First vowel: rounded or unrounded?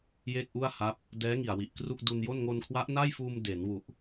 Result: unrounded